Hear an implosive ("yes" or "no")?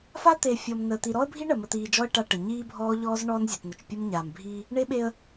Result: yes